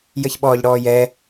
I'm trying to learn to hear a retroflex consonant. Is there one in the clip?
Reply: yes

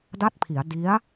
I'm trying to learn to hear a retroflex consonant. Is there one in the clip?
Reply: no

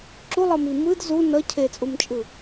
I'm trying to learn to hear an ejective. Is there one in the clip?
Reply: yes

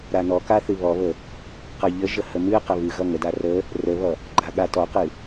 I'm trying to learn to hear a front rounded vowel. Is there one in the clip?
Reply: no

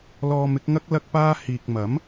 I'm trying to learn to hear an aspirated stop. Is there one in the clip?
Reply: no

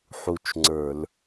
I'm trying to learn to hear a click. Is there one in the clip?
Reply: yes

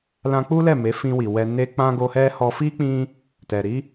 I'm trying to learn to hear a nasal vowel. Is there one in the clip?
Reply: yes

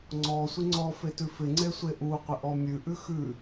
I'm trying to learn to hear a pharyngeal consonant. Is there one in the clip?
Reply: no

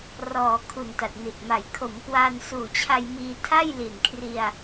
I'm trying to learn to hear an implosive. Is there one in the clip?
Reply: no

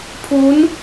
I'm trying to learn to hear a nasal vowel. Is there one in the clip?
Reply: no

